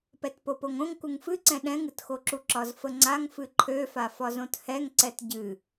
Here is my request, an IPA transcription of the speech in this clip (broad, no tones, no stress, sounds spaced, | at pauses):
p ɛ t p o p o ŋ õ ŋ k u ŋ f ɨ ǀ ɛ̃ ɗ ɛ̃ ŋ ɨ t x o ǁ u ǁ ɒ z f ə ŋ͡ǀ a ŋ f ɨ ǃʰ ø f a f ɒ z õ t h ɛ ŋ ǀ ɛ t ɟ ɨ